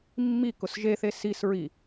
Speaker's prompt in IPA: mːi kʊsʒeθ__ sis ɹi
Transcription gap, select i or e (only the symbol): e